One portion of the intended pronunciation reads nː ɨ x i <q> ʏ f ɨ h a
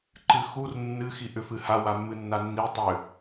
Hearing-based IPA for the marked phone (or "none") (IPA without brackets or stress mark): ʔ